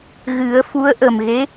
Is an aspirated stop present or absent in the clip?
absent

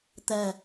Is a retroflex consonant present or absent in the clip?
absent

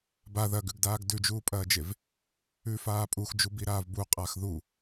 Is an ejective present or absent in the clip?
present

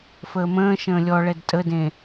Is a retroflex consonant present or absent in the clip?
present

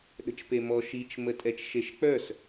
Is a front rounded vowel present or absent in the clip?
present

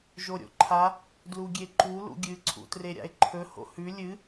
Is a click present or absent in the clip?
present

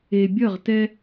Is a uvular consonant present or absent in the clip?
present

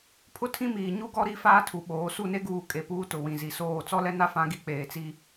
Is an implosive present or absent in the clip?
present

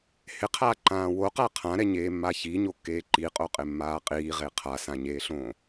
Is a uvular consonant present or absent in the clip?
present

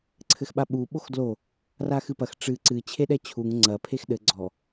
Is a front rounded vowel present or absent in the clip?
absent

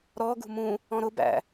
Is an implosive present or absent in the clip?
absent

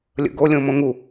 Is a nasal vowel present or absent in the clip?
present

